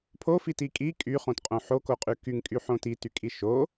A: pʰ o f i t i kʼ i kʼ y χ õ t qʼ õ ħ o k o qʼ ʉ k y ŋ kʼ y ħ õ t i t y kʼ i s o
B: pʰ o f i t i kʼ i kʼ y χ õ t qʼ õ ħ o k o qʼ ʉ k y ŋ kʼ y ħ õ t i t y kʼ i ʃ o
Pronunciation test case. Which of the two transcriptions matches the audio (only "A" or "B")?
B